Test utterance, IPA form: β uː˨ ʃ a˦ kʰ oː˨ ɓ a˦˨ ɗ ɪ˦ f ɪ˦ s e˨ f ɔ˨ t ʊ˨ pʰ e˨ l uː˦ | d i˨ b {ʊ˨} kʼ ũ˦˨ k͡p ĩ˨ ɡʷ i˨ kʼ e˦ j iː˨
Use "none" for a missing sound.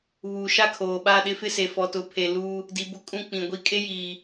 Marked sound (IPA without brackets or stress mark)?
ʊ˦˨